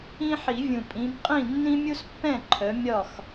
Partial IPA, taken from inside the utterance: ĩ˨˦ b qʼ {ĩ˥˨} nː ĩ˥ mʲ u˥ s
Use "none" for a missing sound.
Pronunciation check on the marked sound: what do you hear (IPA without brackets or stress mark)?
ĩ˥˨